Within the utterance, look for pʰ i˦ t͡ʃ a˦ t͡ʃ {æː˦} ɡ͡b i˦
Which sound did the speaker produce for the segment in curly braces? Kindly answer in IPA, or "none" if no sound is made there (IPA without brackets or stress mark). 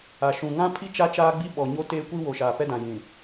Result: aː˦